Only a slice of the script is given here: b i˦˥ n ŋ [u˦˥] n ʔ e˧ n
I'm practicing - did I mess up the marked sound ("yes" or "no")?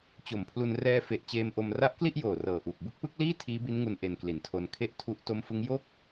yes